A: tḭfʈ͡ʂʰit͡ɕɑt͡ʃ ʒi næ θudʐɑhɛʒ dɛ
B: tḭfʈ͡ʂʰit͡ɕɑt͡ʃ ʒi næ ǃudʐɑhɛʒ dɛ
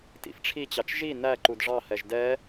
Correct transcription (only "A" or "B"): B